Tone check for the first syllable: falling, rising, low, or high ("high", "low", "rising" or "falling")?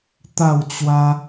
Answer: falling